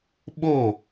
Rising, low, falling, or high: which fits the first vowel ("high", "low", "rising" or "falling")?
falling